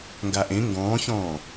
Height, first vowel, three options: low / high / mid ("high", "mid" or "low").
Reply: low